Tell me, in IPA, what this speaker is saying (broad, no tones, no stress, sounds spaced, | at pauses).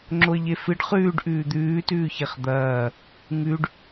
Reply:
ŋ͡ǁ o ə̯ ʎ e f ɨ ɖ χ ʉː ɖ ʔ ʉː d̪ ʉː t ʉː ç e χ d̪ ɐː | ŋ ʉ ɖ